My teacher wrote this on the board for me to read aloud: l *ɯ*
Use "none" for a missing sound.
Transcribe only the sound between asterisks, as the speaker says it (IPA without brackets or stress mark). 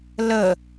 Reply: ə